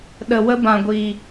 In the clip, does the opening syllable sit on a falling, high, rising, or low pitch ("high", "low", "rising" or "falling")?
low